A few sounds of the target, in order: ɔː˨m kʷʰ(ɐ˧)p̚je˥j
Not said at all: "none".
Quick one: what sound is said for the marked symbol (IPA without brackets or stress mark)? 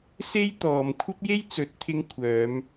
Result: ɐ˥